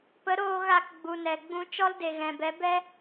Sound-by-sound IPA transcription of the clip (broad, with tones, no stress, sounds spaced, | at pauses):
p ə˨˦ ɾ oː˧ ɣ a˧ k ɡ͡b u˨ n ɛ˨ ɡ͡b ũ˧ t͡ʃ ɔ˦ l d e˨ ɣ ɛ̃˨ b ɛ˨˦ b ɛ˦